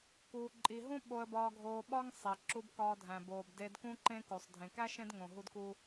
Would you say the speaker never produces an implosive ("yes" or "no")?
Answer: no